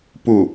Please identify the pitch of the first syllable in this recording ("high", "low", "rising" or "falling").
falling